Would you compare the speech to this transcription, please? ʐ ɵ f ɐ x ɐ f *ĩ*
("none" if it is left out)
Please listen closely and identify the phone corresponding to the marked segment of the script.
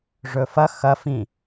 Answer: ĩ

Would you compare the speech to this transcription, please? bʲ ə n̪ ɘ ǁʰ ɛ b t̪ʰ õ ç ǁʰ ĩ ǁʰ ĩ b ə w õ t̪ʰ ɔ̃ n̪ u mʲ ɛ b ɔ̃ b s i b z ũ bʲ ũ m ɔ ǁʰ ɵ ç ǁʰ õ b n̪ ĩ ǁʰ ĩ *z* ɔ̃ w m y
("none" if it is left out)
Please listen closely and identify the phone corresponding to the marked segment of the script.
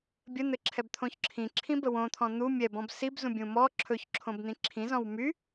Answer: z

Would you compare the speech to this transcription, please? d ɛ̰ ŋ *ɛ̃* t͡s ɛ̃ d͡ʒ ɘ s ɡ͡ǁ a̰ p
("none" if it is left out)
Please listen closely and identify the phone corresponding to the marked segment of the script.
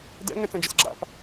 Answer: ɛ̃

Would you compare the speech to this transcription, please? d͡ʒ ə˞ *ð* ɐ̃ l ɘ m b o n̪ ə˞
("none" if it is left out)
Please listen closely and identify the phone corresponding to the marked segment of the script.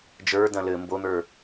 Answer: d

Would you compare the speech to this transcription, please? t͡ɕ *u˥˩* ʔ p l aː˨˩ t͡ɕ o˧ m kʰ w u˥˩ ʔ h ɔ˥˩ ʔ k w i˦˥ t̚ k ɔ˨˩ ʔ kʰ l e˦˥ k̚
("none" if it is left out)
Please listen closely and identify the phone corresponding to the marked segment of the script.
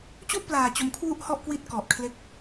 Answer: u˥˩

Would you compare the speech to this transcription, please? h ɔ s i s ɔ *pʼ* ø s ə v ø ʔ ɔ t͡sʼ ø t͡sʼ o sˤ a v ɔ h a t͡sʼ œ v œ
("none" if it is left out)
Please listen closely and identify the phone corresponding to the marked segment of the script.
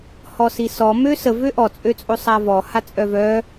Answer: m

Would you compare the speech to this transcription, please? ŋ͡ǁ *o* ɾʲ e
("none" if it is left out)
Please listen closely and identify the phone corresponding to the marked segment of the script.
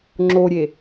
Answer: o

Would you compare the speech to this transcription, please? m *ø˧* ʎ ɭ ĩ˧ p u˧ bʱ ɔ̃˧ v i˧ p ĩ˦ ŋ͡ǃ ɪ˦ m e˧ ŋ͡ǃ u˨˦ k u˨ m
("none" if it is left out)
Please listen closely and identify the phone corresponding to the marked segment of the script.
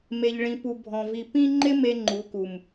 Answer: e˧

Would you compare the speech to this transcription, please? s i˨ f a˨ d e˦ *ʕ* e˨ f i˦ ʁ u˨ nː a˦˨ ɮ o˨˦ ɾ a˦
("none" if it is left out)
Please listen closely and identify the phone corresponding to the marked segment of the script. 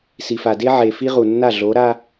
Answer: ʕ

